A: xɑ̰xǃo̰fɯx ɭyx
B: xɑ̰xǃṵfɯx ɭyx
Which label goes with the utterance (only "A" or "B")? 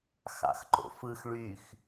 A